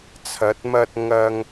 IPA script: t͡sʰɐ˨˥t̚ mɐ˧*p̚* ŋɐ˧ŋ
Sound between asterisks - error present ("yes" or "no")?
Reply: yes